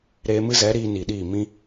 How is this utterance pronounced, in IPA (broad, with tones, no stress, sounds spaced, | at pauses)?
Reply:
ɾ eː˧ m ɨ˦ z ɛ˨˦ ɾ iː˧ n i˨ ɗ iː˦˨ m ĩ˦